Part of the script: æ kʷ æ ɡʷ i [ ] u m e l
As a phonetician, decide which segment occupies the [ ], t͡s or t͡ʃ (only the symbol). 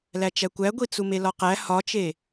t͡s